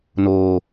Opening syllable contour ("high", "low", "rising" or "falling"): high